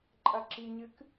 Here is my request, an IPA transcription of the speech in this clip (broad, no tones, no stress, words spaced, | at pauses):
ǃʼɐǁiɲɨk